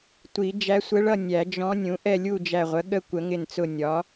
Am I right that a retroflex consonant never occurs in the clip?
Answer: no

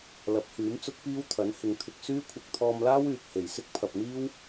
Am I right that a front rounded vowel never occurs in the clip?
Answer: no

